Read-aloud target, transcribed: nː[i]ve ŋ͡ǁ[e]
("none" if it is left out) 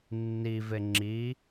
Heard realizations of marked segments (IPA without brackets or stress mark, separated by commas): i, i